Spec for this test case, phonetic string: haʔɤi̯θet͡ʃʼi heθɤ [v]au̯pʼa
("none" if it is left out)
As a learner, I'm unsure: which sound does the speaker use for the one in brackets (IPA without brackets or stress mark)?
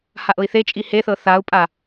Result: θ